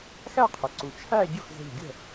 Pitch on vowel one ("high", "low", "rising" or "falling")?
falling